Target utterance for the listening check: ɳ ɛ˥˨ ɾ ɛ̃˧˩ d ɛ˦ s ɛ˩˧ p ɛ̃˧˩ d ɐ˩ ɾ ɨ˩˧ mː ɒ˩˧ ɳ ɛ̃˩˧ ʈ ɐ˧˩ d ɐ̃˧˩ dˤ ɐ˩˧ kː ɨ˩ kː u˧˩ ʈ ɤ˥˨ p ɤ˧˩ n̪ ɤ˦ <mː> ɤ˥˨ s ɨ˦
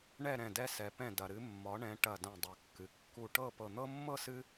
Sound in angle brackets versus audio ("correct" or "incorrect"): correct